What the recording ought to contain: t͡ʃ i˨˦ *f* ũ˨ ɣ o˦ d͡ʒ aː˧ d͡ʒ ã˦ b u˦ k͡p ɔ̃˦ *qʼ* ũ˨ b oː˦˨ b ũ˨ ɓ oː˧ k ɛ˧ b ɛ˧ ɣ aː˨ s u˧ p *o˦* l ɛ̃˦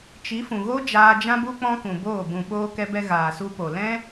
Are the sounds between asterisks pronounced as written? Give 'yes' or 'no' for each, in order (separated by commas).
yes, no, no